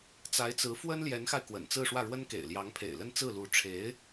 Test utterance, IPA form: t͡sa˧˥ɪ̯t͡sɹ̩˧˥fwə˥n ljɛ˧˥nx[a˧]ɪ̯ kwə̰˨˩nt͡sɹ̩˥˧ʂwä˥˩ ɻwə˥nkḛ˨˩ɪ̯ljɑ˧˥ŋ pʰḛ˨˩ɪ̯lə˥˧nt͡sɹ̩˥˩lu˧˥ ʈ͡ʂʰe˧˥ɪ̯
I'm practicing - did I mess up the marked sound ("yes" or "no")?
no